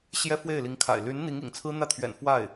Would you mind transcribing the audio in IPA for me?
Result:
ɕ j ɛ˥ f w e˥˩ ɪ̯ l i˧˥ ŋ kʰ a̰˨˩ ɪ̯ l y˧˥ n n̪ i˧˥ ŋ ḭ˨˩ ŋ t͡sʰ ɹ̩˥ n̪ ä˥˩ t̪ʰ ɥ ɛ̰˨˩ n f w a˥˩ ɪ̯

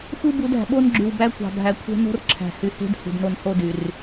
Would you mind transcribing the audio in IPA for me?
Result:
xʷ ɯ˦ b u˨˦ d æ̤˨ ɓ o˦ n ɡ͡ǁ y˨ w b æ˦ kʷ ɑ̤˨ bʱ æ˨ kʷʰ e̤˦ n o̤˦ r ǁʰ æ̤˨ h y˨ h e̤˦ d h ṳ˨ d n o˨ n h o˦ d y˨ r

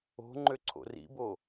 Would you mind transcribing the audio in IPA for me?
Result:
o̤ ŋ͡ǃ ø ǀʰ o̰ r ḭ b o

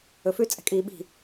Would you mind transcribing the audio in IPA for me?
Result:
ɵ f ʉ t͡sʼ ɛ̤ kʼ iː ɓ i̤

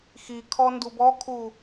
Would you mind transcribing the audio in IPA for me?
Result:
x i kʰ ɔ n d u b ɔ kʰ u

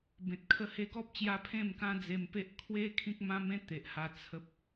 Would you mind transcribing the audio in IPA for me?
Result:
b ẽ˨ t̚ kʰ ə˦ h e˧ ɡ ɔ˦ p̚ t͡ɕ j a˧ pʰ ẽ˥˧ m k ã˦ d͡z e˧ m p e˦ ʔ kʰ w e˦ kʰ ĩ˦ k̚ m ã˦ m ẽ˦ t̪ e˨ ʔ h a˧ t͡sʰ ə˦ p̚

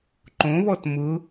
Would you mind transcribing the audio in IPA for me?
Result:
ǃ õ β ɔ t m ʊ

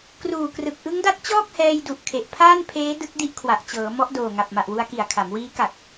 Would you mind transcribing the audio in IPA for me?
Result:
k r uː˨˩ k r ɯ˨˩ k̚ ʔ ɯ˦˥ ŋ d a˦˥ t̚ t͡ɕ ɔː˥˩ k̚ h ɛː˧ j d u˨˩ ʔ kʰ e˨˩ ʔ pʰ aː˥˩ n pʰ eː˦˥ d ɯ˦˥ k̚ d i˦˥ ʔ kʰ w a˨˩ ʔ t͡ɕ ɤː˩˦ m ɔ˦˥ ʔ d oː˨˩ ŋ a˨˩ p̚ m a˨˩ ʔ w u˧ a̯ k i˨˩ a̯ kʰ a˩˦ m w iː˦˥ k a˨˩ k̚

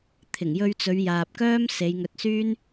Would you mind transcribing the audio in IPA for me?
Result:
t̪ʰ ɪ˨˩ ŋ j ɵ˧ ɥ t͡s ɵ˨˧ ɥ j aː˨ p̚ k œː˥ m s e˨˧ j ŋ ɵ˧ t̚ s yː˥ n

